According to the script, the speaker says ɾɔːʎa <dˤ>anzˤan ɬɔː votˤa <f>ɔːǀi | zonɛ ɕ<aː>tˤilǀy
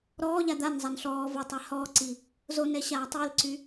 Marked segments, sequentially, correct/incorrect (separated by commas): incorrect, incorrect, correct